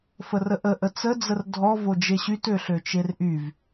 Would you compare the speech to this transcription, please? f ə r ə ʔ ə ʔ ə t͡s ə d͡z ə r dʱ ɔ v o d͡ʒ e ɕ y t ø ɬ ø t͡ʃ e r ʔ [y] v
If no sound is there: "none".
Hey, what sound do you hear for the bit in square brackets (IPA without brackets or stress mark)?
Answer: y